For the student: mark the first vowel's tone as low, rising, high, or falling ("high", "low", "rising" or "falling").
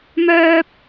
high